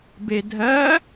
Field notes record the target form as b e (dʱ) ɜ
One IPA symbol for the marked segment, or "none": dʱ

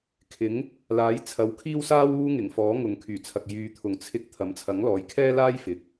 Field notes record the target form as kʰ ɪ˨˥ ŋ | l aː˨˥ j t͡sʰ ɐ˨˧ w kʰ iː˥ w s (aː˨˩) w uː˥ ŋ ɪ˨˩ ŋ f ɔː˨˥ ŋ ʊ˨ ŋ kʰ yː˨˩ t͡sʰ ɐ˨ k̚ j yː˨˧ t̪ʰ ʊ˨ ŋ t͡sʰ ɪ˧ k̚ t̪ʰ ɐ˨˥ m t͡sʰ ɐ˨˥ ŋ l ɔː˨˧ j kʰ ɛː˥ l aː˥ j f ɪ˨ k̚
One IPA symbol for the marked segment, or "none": aː˥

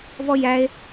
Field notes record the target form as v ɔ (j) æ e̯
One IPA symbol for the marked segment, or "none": j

